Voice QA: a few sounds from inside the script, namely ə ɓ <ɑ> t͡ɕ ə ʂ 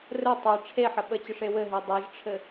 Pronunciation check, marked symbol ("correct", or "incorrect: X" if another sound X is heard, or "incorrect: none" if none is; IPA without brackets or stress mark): incorrect: ə